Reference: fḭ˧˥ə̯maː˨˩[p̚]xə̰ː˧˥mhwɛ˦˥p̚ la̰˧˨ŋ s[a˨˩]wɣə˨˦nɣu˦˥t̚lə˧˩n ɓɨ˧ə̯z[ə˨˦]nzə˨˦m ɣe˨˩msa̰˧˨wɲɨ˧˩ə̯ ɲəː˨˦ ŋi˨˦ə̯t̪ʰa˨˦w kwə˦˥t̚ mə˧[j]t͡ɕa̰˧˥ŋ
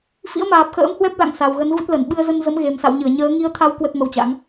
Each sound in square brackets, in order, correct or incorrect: correct, correct, incorrect: ə˧, incorrect: w

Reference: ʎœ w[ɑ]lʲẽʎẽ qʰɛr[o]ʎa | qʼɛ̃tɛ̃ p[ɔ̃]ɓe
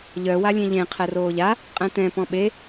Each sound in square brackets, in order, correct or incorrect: incorrect: a, incorrect: oː, correct

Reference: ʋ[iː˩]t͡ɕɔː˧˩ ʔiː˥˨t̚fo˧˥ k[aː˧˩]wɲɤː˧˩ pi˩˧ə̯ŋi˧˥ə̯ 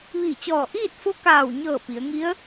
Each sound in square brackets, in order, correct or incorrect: incorrect: iː˧˩, correct

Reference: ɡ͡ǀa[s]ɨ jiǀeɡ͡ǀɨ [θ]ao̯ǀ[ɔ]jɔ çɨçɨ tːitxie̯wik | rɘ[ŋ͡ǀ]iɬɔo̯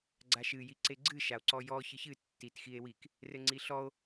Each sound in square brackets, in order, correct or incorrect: incorrect: ʃ, incorrect: ʃ, correct, correct

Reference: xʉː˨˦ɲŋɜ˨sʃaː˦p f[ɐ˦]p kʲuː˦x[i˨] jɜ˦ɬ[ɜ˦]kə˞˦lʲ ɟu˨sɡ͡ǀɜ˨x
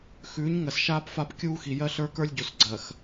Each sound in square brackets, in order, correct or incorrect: incorrect: a˦, correct, incorrect: ə˞˦

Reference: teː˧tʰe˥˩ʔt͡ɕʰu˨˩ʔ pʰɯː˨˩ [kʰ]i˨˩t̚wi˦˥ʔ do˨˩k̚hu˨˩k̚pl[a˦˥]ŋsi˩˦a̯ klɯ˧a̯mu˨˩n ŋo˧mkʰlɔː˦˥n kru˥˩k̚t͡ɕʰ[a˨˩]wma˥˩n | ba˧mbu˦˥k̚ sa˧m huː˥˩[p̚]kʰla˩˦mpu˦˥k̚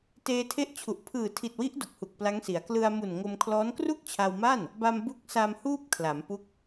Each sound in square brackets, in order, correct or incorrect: incorrect: tʰ, correct, incorrect: a˧, correct

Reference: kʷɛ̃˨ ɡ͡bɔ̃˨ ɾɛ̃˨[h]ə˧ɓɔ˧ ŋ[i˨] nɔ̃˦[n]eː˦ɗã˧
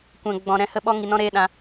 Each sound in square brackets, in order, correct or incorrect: correct, correct, incorrect: ɾ

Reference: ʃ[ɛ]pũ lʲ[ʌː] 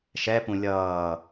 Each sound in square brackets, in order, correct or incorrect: correct, correct

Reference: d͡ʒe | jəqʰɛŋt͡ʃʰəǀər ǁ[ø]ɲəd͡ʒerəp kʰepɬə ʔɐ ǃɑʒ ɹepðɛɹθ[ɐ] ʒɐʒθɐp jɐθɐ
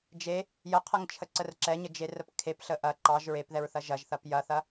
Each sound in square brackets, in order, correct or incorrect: incorrect: ɛ, correct

